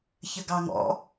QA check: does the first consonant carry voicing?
no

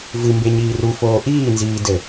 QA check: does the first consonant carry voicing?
yes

